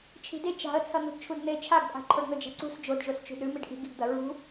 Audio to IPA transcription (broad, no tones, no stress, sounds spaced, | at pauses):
t͡ʃʰ i̤ d e t͡ʃ a̤ ə̯ t͡sʰ ɐ n̪ ṳ ɖ t͡ʃʰ u d n̪ e t͡ʃʰ a ɡ pʼ a̤ ǃʰ o ɖ n̪ ɵ d͡ʒ a̤ ǀ ṳ s d͡ʒ o d ʒ o s t͡ʃ ṳ d ɾ ʉ m i ɖ ʔ i̤ ɡ i ɡ d̪ ɐ ɹ ṳ